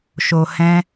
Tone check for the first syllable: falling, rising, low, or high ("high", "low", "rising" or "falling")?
low